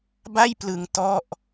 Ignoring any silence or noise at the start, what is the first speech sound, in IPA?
b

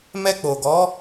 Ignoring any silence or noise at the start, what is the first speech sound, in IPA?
m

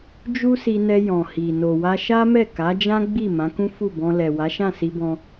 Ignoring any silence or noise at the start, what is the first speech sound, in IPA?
d͡ʒ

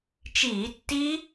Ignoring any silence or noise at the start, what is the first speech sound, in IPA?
t͡ʃ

